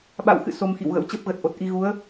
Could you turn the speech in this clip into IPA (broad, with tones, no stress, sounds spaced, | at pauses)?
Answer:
ɓ a̰˧˨ w x ɨ̰˧˨ s o˧ m x ḭ˧˨ w ɣ ə̰˧˥ w t͡ɕ ə˦˥ p̚ ɣ ə˨˩ t̚ ʔ o˨˩ t̚ ʔ i˧ ɣ u˨˦ ə̯